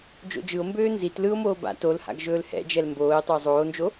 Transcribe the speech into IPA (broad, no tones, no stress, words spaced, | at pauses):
d͡ʒo̰d͡ʒɯo̯mbøː nzit lɯo̯moː ba̰ tolha̰ɡ ʒɵːlhɛ̰d͡ʒɛl mboːe̯tˤɵo̯ zˤoːnd͡ʒo